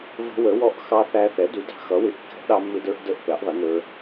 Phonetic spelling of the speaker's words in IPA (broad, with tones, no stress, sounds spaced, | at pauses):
v ə̤˦˥ w ə˨˥ w ɔ˦˥ ʔ x ɑ˦˥ θ æ˦˥ θ ɛ˨˥ d u˨˥ d ɑ̤˦˥ x ʌ˨˥ w ɪ˨˥ ʔ kː ɛ̤˦˥ ʔ ɗ ɑ˦˥ mː ɪ˦˥ d ə˞˦˥ ʔ d ə˦˥ ʔ p ɛ˨˥ ʔ ðˤ ɪ˨˥ n ə˞˦˥